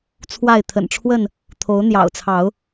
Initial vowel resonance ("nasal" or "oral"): oral